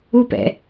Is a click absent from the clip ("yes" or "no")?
yes